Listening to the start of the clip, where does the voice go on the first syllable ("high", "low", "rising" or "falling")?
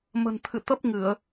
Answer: low